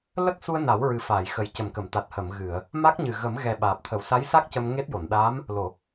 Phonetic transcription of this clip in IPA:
l ə˦˥ k̚ s u˧ ə̯ n a˨˩˦ w ɹ ɨ˨˩ f aː˨˩˨ j x ə˨˩ j c ə˨˩ m k ə˨˩˨ m t̪ a˨˩ t̚ h ə˨˩˨ m ɣ ɨ˨˩˨ ə̯ | m a˦˥ k̚ ɲ ɨ˨˩ ɣ ə˨˩˦ m ɣ ɛ˨˩ ɓ aː˨˩ p̚ t̪ʰ ə˨˩˦ w s a˧˥ j s a˦˥ k̚ c ə˧ m ŋ e˦˥ t̚ j o˨˩˨ n ɗ aː˧˥ m | l o˨˩˨

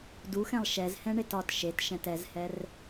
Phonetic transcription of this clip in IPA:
d u x ɛ̃ lˠ ʃ ɛ z h ɛ̃ ɳ e t ɒ t ʃ e t ʃ ɛ̃ t ɛ z h ɛ r

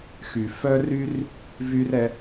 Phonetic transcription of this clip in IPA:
x y˩ f œ˥ r y˥ r | v y˥ r ɛ˧

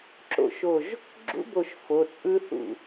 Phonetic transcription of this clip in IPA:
ǁ o̰˧˩ ʃ o˧˩ ʒ | ɡ͡ǁ ṵ˦˥ b o˧˩ ʃ f o˩˧˩ t͡sʼ ɯ˦˥ θ ṵ˧˩

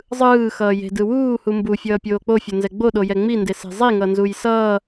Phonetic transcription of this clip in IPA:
zˤ ɯː x ʌː j e̤ d ɯ w uː h u m b u fʲ ʌː pʲ oː k͡p o fʲ o n z ɛ ɡ͡b o ɗ o j ɛ ŋ͡m i n d e s e̤ zˤ i ŋ ʌ n z u j s ʌː

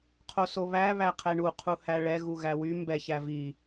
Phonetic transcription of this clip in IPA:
qʰ o s o β æ β æ qʰ ɛ ɳ u qʰ u h æ ɭ ɛ ɣ u ɣ æ w y m b ɛ ç æ v i

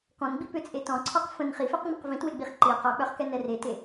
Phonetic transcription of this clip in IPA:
k ɔ̃ n ɡ͡b i p ʏ t͡sʼ e t ɔ̃ ǀʰ ɔ q f ə̃ n χ i f e q ŋ͡m ə q v ĩ t w e ɡ͡b i χ ǃ i q ɔ k͡p œ χ k ɛ n ɛ r e t e

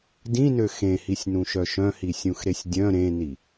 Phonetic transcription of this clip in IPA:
d ĩ n ø x ẽ h i sʲ n ũ ʃ œ ʃ œ̃ h i sʲ ũ x ɾ e sʲ dʲ œ̃ ɾ ẽ n i

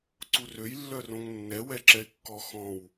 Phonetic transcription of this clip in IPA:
ǀ u r ø j lː œ r õ ŋ nː ɛ w ɛ ǁ ɛ ɪ̯ kː ɔ x ɔ̃ w

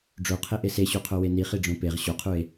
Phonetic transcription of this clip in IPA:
ɖ͡ʐ o qʰ e ʔ e s e ɕ u qʰ o w e n i χ i ɖ͡ʐ õ p e ʁ ɕ o qʰ u e̯

